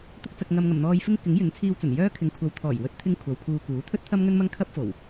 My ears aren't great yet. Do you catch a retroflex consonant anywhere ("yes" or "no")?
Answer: no